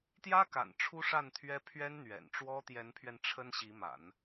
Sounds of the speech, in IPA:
t̪ j ä˥ k a̰˨˩ n ʈ͡ʂʰ u˥ ʂ a˥˩ n t̪ʰ ɥ ɛ˥ pʰ ɥ ɛ˥ n n̪ ɥ ɛ̰˨˩ n ʈ͡ʂ w ɔ˥ t̪ j ɛ˧˥ n pʰ ɥ ɛ˧ n ʈ͡ʂʰ ə˥ n ɕ i˧˥ m a̰˨˩˦ n

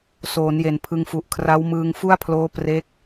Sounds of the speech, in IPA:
s oː˩˦ n j e˨˩ n pʰ ɯ˧ ŋ f u˨˩ ʔ kʰ r a˦˥ w m ɯː˧ ŋ f u˥˩ a̯ pʰ l oː˦˥ p r e˦˥ k̚

